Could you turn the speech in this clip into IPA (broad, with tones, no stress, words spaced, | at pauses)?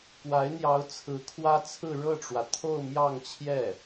kwa˧˥ɪ̯n̪jɑ˧˥ʊ̯ t͡sʰɹ̩˧˥kʰwä˥t͡sʰɹ̩˥˧ ɻɤ˥˩ʈ͡ʂwä˩t̪ʰo˥˧ʊ̯ mjɑ˥˧ŋt͡ɕʰjɛ˥˩